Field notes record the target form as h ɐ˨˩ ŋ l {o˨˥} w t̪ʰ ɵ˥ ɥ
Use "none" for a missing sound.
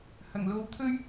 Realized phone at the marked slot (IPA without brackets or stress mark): o˧